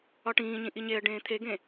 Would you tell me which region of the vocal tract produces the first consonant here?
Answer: retroflex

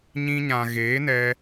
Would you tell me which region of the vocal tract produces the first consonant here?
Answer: palate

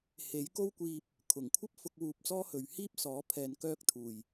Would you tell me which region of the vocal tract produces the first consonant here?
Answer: throat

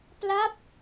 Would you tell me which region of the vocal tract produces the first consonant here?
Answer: lips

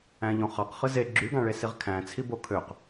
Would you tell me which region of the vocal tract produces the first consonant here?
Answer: palate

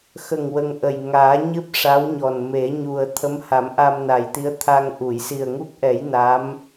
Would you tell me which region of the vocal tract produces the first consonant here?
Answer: velum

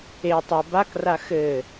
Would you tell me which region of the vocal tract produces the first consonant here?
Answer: tongue tip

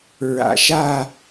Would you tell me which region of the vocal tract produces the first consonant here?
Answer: tongue tip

